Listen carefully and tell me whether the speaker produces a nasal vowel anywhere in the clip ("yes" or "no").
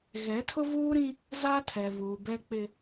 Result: yes